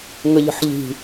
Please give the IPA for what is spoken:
ŋ ə ʎ ə̤ ħ ʎ i̤

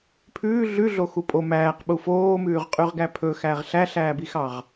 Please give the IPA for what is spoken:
pʰ ʉː ɮ ʉ ɮ o x u pʼ o m æː q ɓ u f oː m ʉː ʁ qʼ y ʁ ɡ æ pʰ ɵ x æ ʁ ɬ æ ɬ æː b i x ɑ ʁ

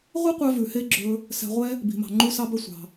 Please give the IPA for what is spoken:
ʁʷ i˥ qʷ œ˧ v ʉ˩ h e˧ ɡ͡ǁ ɵ˧ | s ɛ̤˧ ʁʷ ɛ˥ | b i̤˩ m ɑ̤˩ ŋ͡ǃ u˧ s ɑ˧ b œ˧ sʷ ɑ̤˩

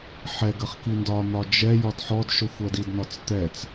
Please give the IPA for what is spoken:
ħ ɛ ɡ ə χ k i n d ɒ n̪ ɒ d͡ʒ ɛ j ɒ d ħ ɔ d ʃ ʊ xʷ ɜ d i d n ɒ t͡s t̪ ɛ t͡s

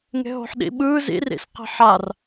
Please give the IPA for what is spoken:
ŋ e̤ ɦ o̤ ħ ɗ ḭ ɓ ɯː z ḭ r ḭ s q e̤ ħ a r

